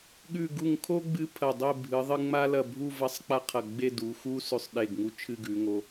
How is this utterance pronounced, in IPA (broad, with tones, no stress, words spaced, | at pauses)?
ɠʉ˧˩ɡu˧˩ŋkʰo˥ ɡ͡bɨ˧ pʰɐ˧˩dˤe˥˧ bʱɨ˩˧ ðˤɨ˧ŋ͡ma˥lɐ˧˩bʱu˥˧ vɐ˥˧sˤk͡pa˥qʰɐ˧˩ ɡ͡be˥˧du˩˧xu˥ sʉ˧˩sˤɗe˧˩ɡŋu˧ t͡ʃʰɨ˥˧ɡʉ˩˧ŋo˧